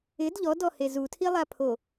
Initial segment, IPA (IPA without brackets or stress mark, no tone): ɪ